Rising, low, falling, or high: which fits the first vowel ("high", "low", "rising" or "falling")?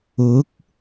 rising